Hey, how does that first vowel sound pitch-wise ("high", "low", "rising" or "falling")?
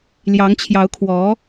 rising